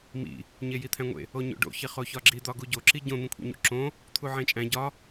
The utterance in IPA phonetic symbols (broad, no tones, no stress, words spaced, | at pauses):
mḭ | ɲejit̪ʰæ̃ŋʷḛ | oɲo̰ɖo̰ çiχoçɒɡ͡ǁi d̪ɒɡuɟo ǁiɟõ n̪ĩkʷʰḛɲṵǁõ | t̪ʰuʕẽt͡ʃʼæ̃ ɟɒ